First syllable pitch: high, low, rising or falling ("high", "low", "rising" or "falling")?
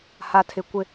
high